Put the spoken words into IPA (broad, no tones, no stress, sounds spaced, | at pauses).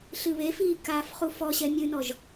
ɬ ɨ β e f iː k aː f χ u f ɔ ɕ ɛ mʲ ɨ n ɔ ʒ